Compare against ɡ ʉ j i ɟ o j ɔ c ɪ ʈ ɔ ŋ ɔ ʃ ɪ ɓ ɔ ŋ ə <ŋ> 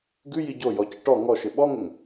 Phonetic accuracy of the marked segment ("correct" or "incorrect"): correct